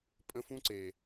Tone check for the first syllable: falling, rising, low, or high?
high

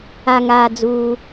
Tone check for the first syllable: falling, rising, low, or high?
low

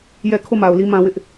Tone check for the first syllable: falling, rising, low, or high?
falling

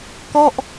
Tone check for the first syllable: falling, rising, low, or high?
falling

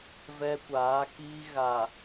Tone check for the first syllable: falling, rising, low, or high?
high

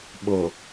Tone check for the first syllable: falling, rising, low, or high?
low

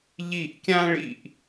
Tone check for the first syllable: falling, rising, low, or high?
falling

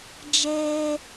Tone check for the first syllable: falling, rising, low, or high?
high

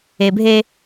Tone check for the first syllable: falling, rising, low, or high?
low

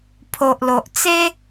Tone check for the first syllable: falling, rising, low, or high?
low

